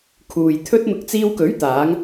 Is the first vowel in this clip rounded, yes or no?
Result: yes